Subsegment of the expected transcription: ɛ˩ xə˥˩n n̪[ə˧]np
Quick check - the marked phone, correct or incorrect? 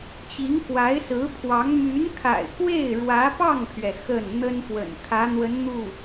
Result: incorrect